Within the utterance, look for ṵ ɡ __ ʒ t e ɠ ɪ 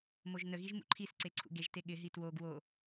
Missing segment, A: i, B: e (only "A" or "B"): B